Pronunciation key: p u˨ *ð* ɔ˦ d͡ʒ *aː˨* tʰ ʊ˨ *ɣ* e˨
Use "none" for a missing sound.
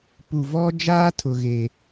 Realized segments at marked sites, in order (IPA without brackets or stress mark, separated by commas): v, aː˦, ɣ